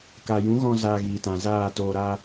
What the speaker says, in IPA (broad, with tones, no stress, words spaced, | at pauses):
ka˨jũ˨˦ɣɔ̃˧ zaː˧ɣiː˨tã˨zaː˦˨ toː˨ɾa˧